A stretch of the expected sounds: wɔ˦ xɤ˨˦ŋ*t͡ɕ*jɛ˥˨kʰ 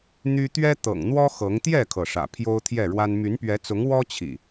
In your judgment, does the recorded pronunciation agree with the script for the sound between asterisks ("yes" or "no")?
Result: no